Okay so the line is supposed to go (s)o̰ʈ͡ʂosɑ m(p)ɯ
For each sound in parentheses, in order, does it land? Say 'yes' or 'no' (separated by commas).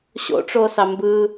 no, no